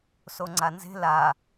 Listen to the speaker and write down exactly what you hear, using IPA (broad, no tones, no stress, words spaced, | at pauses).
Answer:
soŋ͡ǀanze̤ la